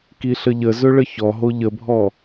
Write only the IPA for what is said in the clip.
kiɬəʎəzɵ ɭəçɔɦo ʎəbʱɔ

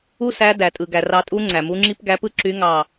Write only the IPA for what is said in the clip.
u˦˥sæ˨˦ dæ˩tʼɯ˩ ɡæ˩rɑ˧˩tʼu˦˥ ŋ͡ǀæ˩mu˨˦ŋ͡ǁi˦˥p ɡæ˨˦pɯ˦˥ǁy˨˦ŋɑ˧˩

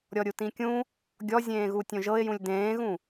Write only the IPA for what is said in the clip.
ɾʲɔɾʲutĩkʲũ | ɡʲɔzʲẽːɣu tʲõʒɤɪ̯jũlʲ dẽːɣũ

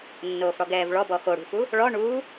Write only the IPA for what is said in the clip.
nːoːfɽɔɡɛːvɭɔ bɔxoɽṳfu | ɭɔ ɳuː

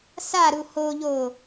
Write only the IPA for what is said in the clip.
saɾu hoʎo

